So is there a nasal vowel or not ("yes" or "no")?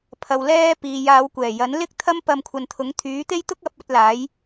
no